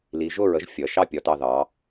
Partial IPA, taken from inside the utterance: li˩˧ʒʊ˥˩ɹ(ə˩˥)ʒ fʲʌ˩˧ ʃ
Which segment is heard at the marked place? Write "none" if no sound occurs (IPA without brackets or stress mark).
ə˩˥